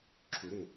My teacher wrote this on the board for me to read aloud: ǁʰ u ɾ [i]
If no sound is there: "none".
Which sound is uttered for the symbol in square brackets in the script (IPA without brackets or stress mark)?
e